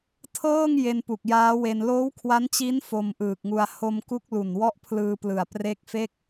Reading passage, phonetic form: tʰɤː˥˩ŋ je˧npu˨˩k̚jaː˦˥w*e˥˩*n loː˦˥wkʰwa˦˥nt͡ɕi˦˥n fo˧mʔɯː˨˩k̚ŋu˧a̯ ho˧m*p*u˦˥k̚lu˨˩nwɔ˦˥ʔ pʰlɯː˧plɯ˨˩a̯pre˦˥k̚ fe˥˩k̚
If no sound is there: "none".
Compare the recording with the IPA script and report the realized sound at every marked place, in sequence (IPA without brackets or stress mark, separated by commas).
e˧, k